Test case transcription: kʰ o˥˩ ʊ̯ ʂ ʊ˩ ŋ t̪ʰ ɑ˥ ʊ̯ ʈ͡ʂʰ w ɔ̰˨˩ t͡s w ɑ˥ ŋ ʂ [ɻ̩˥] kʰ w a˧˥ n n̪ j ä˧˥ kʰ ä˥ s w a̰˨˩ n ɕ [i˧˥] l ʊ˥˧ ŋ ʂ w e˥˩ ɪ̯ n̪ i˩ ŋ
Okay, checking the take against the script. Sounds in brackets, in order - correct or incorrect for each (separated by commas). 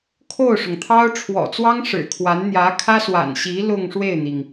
incorrect, correct